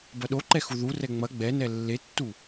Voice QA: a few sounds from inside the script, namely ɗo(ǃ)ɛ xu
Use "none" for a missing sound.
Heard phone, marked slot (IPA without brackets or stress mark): ǃ